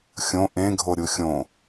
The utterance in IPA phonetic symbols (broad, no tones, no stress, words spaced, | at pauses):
xʲõ ʔẽ ɡʱoɾʲuxʲõ